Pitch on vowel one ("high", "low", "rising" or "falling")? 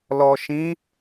low